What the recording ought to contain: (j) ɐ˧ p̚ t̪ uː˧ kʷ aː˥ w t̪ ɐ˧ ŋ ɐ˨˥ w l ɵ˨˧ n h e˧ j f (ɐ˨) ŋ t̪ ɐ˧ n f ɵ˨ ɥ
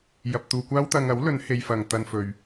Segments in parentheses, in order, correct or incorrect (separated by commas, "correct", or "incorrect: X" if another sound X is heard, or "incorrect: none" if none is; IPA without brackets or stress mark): correct, correct